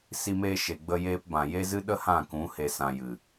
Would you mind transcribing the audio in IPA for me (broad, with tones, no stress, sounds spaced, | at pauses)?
s i˧ m eː˧ ʃ e˨ ɡ͡b ə˧ j eː˧ p b ã˨ j e˦ z ɨ˦ ɗ ə˦ h ã˦˨ k ũ˨˦ h e˨ s ã˨ j ɨ˨